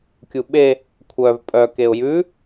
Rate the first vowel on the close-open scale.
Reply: close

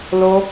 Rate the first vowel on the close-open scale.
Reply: mid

